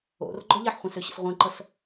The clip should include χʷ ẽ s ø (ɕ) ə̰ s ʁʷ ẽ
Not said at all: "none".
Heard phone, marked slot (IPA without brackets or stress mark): ɕ